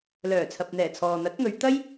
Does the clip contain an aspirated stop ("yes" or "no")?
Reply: yes